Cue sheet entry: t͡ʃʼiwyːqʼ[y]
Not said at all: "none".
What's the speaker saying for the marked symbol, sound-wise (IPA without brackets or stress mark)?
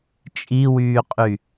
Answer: y